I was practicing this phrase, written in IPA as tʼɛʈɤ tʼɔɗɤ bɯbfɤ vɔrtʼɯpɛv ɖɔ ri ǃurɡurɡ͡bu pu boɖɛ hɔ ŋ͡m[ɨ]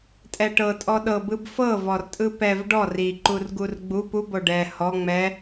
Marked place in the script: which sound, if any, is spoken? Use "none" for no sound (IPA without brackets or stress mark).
ɛ